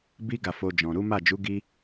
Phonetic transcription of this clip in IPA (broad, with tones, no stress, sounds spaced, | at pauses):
b i˦ ɡ a˦˨ f o˧ d͡ʒ ɔ̃˨ ɾ u˨˦ m a˦˨ d͡ʒ u˨˦ ɡ i˦